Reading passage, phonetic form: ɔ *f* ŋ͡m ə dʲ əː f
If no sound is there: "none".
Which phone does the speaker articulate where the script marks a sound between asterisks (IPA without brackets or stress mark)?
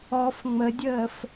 f